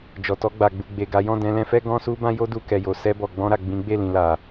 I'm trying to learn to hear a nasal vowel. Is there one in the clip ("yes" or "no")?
yes